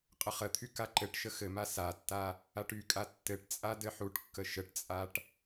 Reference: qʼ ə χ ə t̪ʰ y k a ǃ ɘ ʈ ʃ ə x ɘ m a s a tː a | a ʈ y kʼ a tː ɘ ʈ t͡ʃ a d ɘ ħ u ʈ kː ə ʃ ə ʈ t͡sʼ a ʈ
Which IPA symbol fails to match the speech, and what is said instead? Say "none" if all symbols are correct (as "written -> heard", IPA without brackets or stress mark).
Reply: t͡ʃ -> t͡sʼ